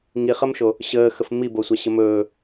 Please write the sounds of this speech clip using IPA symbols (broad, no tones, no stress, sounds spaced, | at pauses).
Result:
ŋ i χ ə m ʃ o | ɕ əː x ə f m i b o sʷ a ɕ ə m ɵː